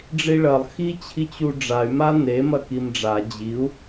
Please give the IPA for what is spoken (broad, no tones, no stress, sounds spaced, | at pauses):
ɖ͡ʐ i ɭ ɐ lˠ x i t͡ɕʰ i t͡ɕ u ɖ͡ʐ a y̯ m a n e m ɐ k i m ɖ͡ʐ a d͡ʑ i u̯